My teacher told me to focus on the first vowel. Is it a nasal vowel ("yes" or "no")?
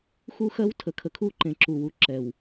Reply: no